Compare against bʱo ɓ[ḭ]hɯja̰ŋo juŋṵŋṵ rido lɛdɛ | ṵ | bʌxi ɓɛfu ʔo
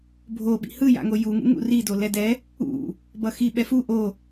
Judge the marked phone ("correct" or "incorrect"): correct